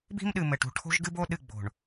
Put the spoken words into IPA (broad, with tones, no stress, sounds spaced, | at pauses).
b i̤˦ m ɗ ɨ˨ m ɘ˨ ʈ ṳ˨ ʈʰ o̤˦ ʒ ɡ ɨ˦ b o˦ ɗ ɨ˦˨ ɡ͡b o̤˨ ɳ